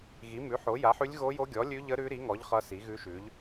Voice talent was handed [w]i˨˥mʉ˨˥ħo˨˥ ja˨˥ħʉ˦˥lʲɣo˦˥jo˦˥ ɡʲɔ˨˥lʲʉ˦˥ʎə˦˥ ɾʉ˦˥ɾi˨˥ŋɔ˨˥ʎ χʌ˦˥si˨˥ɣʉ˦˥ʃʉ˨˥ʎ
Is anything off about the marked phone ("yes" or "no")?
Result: yes